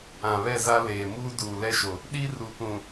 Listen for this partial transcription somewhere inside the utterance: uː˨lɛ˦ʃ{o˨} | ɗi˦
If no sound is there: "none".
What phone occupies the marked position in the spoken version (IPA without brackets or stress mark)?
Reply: o˨